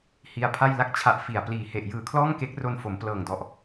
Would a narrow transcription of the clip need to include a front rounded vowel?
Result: no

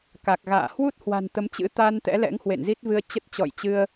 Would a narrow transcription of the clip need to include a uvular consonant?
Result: no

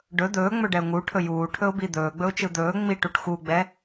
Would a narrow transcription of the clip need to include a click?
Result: no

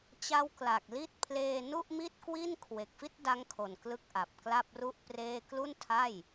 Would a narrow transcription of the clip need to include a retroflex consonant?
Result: no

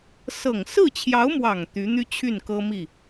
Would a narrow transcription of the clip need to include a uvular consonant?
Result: no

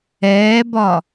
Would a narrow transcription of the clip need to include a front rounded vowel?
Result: no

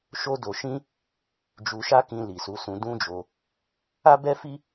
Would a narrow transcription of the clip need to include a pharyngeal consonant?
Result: no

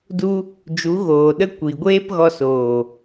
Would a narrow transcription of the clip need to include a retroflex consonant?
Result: no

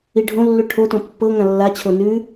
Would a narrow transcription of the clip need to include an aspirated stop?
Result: yes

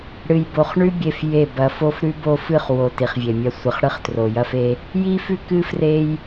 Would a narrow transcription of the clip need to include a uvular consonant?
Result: yes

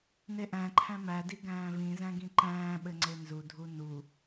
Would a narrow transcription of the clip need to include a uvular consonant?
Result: no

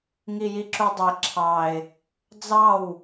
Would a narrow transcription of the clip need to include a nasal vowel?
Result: no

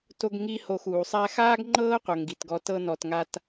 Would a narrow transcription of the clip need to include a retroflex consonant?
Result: no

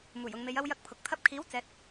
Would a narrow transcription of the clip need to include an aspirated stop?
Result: yes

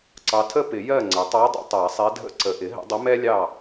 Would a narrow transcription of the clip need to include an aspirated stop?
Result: yes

